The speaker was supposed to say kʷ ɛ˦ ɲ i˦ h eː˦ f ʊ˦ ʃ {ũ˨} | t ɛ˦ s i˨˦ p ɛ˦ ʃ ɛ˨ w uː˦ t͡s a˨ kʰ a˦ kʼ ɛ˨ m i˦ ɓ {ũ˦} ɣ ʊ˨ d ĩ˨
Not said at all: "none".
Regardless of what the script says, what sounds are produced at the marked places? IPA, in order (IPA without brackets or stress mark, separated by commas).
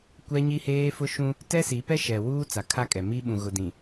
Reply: ũ˦, ũ˨